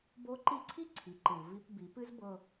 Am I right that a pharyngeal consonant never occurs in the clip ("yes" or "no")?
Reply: yes